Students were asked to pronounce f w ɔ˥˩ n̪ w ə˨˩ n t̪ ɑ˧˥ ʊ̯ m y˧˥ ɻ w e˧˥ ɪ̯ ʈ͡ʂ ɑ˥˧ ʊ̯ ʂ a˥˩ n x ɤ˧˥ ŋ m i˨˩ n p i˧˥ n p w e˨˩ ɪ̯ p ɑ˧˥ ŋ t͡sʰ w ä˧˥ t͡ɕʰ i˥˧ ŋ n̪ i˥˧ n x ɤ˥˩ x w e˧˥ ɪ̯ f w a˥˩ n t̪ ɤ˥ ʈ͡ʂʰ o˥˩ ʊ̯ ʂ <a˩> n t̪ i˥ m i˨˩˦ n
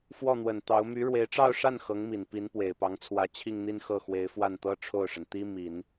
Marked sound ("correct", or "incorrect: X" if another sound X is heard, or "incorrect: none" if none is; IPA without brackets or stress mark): incorrect: ə˩